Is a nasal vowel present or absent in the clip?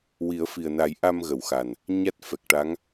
absent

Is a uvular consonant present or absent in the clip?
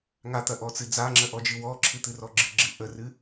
absent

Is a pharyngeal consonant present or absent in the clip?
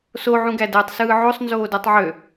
present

